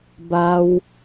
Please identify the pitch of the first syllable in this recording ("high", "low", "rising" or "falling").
high